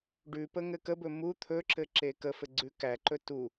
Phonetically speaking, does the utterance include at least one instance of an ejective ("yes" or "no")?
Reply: no